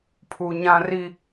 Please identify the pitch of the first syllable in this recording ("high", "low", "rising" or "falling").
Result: low